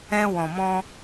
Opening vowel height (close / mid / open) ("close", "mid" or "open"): mid